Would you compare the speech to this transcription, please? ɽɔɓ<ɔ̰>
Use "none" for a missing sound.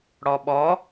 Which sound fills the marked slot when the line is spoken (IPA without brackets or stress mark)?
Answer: ɔ